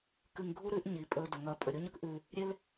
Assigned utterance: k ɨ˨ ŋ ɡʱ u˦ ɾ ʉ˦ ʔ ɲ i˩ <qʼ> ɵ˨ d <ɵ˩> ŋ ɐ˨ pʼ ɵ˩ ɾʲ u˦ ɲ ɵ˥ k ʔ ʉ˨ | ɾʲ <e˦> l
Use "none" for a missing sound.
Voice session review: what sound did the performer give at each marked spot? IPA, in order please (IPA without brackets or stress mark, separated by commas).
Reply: pʼ, ɵ˩, e˦